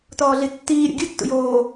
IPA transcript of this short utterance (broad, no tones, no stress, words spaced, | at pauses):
tɔːɮitːiː ɾʲɔ̰ɡʲɯ tːṵjoː